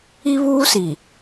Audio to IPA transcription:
i˦ β uː˦ s i˨

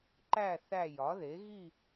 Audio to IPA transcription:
ǃ æ˦˨ θ æ˦˨ j ɒ˩˥ ð e˩˥ ɣ i˦˨

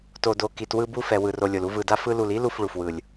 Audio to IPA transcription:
t o˨ d o˨ k i˨ t w ɯ˧ b u˧ f ɛ˨ w ɯ˨ r o˨ lʲ o˨ l u˧ v ɯ˨ d a˧ f ɯ˧ l u˨ l i˦ l u˧ f ɭ u˨ f w ɯ˨ lʲ

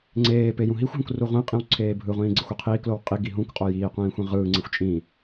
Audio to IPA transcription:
ŋ͡ǀ eː p e j ũ ɦ i xʷ ɦ ũ k r u ʁʷ ĩ qʼ ĩ w ǀʰ eː bʱ ɯ ʁʷ ĩː ɡ͡ǀ e xʷ ø qʰ iː k l o w qʼ i ɡ i ɦ ũ k qʼ o j iː qʷ ĩː xʷ ĩ ʁ ɯː ŋ͡ǀ e xʷ t͡ʃʼ ĩ

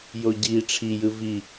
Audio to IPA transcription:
j o ɟ i ʈ͡ʂʰ i j ɯ v i

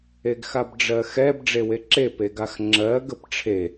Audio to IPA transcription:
e ɡ x a b ɖ͡ʐ ɜ x ɛ b ɖ͡ʐ e w e ǁ e p e ɡ a x ŋ͡ǁ ɜ ɡ ə p ʈ͡ʂʰ e

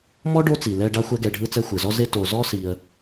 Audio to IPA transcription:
m ɔ˥ ɖ o˦ t͡s i˩ l ɛ˨ ɖ a˦ xʷ ɛ˦ ɡ ɛ˨ ɖʱ ɯ˦ t͡s ɛ˦ xʷ ɯ˩ z ɔ˥ z e˥ t o˨ z ɔ˥ s i˨ ə̯

